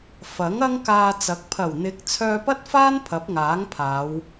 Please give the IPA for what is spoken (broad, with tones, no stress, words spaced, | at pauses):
fɐ˨˥ŋ ɐ˥ŋkaː˧t͡sɐ˨˥k̚ pʰɐ˨˩wn̪ɪ˨˥k̚ t͡sʰœː˧pɐ˥t̚faː˥n pʰɐ˨˥p̚ŋaː˨˥ŋpʰaː˨˧w